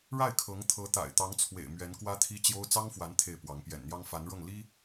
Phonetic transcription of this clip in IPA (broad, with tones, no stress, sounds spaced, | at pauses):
ɻ a˥˩ ɪ̯ kʰ ɤ˧˥ ŋ t̪ʰ ɤ˧˥ t̪ a̰˨˩ ɪ̯ t̪ ɑ˧˥ ŋ t͡sʰ w ḛ˨˩ ɪ̯ m ɥ ɛ˧˥ n k w ä˥ t̪ʰ i˥ t͡ɕ j o˥ ʊ̯ t͡s ɑ˥ ŋ f w a˧˥ n t̪ʰ e˥˩ ɪ̯ p w ɑ˧˥ ŋ p j ɛ̰˨˩ n n̪ j ɑ˥ ŋ f a˧˥ n ɻ ɤ˥˩ ŋ l i˥